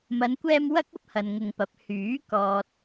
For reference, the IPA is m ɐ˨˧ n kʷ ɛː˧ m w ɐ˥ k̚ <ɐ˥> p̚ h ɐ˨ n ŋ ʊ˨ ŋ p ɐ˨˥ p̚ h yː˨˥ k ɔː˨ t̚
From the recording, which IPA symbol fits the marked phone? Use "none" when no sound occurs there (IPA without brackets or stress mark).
ɐ˥